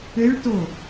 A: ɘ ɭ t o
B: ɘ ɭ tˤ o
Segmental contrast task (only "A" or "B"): A